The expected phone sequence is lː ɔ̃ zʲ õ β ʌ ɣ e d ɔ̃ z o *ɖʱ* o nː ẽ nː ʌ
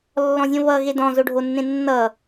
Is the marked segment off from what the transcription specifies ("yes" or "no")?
no